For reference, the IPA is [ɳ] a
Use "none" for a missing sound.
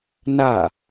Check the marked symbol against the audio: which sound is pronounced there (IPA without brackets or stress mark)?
n